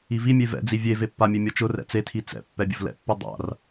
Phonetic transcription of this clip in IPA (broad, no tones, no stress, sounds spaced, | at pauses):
i v i mʲ e v ɛ̰ d͡z i vʲ e v e pː a mʲ e mʲ ɔ t͡ʃ ʊ r ɛ̰ t͡s e tʰ i t͡s ɛ̰ pː ɛ bʲ ʊ v l ɛ̰ pː u dˤ a̰ r